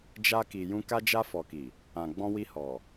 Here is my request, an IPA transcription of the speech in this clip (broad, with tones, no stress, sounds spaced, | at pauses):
d͡ʒ a˧ k i˨ j ũ˧ k a˧ d͡ʒ a˧ f ɔ˨ k i˨ | ã˨ ɡ͡b ɔ̃˧ w i˧ h ɔ˨